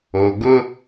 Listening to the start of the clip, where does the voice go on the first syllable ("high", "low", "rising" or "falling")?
low